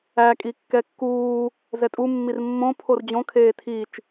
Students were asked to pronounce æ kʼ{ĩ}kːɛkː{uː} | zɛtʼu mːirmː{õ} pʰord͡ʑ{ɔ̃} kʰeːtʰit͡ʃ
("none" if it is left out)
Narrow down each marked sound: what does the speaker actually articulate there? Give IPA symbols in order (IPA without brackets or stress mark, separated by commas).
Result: i, uː, õ, õ